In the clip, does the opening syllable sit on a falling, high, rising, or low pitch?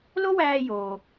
high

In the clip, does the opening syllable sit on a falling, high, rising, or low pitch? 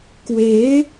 rising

